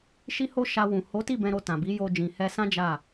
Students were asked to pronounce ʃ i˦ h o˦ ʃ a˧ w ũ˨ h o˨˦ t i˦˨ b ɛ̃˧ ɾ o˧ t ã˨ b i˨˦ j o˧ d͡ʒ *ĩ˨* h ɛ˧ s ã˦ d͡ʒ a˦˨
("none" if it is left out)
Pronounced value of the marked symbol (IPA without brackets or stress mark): ĩ˨